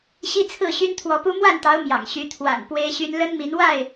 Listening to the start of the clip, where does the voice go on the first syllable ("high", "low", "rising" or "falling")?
high